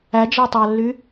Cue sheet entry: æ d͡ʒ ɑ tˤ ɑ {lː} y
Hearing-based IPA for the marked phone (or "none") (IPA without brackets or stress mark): lː